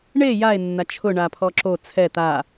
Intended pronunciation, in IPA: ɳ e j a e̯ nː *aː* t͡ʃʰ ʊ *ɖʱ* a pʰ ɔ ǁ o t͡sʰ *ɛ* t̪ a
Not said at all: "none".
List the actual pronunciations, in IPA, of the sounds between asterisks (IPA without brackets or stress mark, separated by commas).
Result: a, ɳ, ɛ